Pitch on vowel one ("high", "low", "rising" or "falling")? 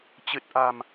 low